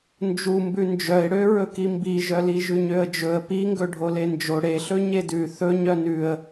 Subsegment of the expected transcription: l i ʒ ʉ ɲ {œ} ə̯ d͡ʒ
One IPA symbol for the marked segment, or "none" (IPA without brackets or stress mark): ø